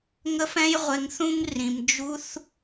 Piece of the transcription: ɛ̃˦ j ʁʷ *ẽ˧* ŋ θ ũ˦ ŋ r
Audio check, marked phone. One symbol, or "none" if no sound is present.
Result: e˧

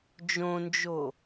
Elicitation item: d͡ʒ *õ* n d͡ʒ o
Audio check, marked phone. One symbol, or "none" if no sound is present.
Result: õ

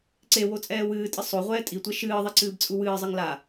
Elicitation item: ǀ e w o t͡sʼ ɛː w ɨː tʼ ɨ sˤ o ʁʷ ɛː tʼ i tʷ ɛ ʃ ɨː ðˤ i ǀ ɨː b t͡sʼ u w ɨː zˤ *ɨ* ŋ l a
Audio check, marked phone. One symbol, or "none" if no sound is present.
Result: ɨ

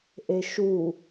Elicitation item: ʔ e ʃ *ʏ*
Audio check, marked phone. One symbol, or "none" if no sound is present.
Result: u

